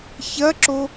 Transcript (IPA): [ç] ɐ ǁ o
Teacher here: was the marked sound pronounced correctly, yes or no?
yes